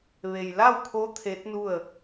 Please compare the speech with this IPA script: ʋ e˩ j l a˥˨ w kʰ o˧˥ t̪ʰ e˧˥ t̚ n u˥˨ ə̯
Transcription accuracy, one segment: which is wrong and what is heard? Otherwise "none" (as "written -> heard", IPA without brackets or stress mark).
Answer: none